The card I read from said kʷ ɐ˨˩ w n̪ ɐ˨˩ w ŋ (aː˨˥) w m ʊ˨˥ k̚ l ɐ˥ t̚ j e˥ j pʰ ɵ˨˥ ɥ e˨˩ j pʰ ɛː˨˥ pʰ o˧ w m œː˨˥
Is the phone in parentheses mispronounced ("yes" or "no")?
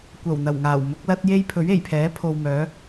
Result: yes